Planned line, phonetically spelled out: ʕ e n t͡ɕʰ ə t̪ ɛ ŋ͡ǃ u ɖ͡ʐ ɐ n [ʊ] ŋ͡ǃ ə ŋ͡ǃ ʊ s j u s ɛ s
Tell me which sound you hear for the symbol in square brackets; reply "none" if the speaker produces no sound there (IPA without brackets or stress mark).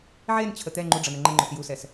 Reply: ə